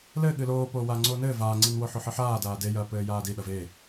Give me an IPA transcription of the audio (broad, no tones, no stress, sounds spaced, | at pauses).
l ɘː ɠ ɨ l oː p oː w aː ŋ͡ǀ oː n ɘː v aː ŋ͡ǀ i n w o ħ o ħ ɨ ħ aː d aː d e j ɐː p ɘː j aː d i ɗ ɐ v e